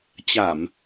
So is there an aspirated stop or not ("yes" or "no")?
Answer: no